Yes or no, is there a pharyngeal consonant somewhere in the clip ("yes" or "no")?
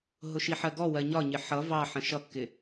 yes